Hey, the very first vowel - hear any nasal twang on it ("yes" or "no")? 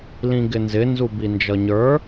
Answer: yes